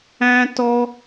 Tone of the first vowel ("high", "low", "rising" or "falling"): high